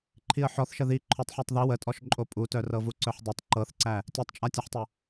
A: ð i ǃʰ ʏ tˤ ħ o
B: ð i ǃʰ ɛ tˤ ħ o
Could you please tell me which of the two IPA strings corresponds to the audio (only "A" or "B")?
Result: A